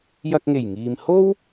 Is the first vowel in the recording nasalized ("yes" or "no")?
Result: no